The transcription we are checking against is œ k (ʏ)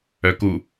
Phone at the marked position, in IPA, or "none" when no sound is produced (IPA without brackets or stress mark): u